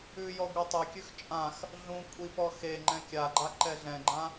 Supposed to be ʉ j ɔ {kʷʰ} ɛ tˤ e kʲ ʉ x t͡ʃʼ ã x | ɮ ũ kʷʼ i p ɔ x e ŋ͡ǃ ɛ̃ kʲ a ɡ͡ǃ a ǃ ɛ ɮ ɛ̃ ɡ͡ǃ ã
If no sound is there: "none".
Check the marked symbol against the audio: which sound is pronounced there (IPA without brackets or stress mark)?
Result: ɡʷ